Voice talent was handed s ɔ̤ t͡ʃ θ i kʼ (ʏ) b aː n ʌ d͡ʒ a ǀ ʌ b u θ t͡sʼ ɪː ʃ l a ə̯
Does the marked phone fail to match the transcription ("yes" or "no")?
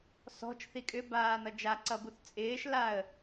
no